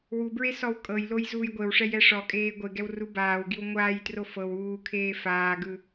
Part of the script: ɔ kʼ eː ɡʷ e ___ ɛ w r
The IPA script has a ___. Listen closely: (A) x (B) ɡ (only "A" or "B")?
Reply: B